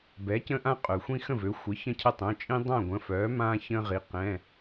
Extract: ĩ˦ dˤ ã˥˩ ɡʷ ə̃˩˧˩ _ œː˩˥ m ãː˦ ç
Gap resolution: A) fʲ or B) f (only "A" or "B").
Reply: B